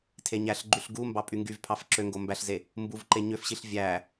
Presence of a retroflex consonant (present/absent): absent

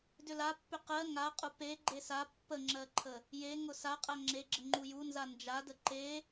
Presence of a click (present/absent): present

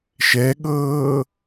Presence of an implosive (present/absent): present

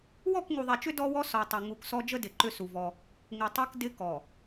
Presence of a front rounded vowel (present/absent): present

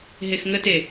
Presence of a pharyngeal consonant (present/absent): absent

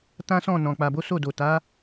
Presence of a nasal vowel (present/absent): present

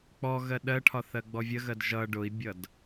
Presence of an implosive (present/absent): present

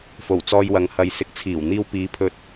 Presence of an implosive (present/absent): absent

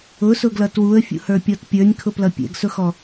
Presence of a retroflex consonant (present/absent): absent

